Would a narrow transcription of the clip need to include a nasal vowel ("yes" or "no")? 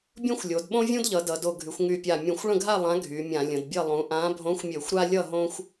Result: yes